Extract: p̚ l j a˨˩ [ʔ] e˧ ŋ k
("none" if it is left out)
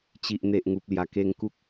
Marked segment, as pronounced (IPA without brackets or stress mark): k